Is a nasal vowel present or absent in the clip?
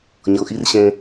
present